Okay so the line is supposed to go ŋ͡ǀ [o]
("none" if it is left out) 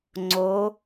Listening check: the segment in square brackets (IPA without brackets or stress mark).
o